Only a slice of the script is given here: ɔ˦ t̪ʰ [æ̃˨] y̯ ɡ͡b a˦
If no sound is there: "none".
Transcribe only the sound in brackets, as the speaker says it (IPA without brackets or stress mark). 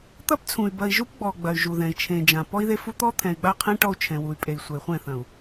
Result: ɛ̃˨